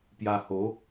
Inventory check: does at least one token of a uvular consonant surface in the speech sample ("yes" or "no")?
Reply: no